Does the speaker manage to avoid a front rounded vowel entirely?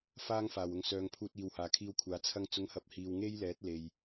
no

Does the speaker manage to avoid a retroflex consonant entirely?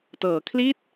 yes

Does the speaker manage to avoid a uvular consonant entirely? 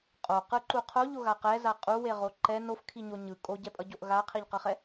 no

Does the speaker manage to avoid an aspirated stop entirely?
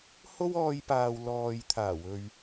no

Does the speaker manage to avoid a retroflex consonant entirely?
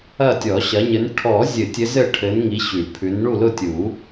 no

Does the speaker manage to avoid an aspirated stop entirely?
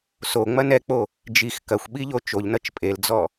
yes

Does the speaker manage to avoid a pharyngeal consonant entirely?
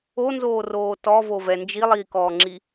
yes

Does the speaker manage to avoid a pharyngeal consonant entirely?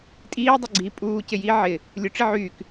no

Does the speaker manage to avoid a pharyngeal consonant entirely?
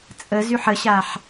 no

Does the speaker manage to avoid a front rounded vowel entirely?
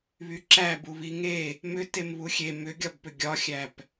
no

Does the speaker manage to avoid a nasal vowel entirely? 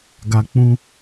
no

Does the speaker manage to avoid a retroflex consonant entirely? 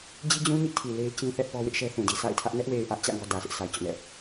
yes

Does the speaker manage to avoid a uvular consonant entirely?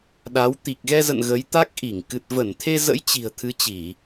yes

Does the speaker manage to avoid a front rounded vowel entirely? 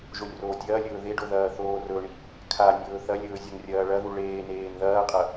yes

